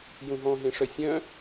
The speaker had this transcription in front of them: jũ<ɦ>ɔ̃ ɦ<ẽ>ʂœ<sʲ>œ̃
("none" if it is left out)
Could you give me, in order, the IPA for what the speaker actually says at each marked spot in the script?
ɦ, ẽ, sʲ

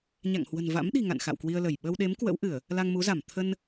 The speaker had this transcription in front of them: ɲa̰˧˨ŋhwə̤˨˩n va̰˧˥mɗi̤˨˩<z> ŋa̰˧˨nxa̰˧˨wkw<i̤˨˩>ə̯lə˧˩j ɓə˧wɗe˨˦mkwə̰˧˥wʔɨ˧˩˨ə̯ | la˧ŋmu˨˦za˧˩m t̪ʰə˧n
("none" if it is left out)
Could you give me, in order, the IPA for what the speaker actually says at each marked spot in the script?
none, i˧

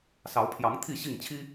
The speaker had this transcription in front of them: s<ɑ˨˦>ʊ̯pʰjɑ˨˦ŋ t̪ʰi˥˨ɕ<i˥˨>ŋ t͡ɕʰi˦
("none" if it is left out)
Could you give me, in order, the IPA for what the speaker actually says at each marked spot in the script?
ɑ˨˦, i˥˨

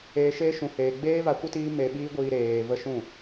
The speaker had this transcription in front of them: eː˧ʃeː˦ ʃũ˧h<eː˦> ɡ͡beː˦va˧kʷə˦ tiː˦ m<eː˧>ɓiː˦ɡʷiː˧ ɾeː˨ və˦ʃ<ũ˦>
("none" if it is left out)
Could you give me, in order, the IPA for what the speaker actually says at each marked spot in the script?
eː˧, e˧, ũ˦˨

